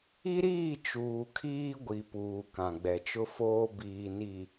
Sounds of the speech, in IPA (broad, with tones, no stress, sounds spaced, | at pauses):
i˦ ɾ iː˦˨ t͡ʃ uː˨ kʰ iː˦ ɡʷ i˨ p uː˨ k ã˨ ɡ͡b ɛ˨ t͡ʃ ʊ˦ f oː˦ b iː˨ n i˨